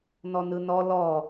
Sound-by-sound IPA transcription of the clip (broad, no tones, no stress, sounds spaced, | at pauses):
n ɔ n ɯ n ɔ l ɔ